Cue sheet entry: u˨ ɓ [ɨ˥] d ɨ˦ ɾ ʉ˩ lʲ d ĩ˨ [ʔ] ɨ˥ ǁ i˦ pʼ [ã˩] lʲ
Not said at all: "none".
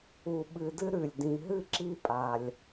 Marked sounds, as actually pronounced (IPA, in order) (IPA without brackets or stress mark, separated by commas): ɨ˨, ɦ, a˩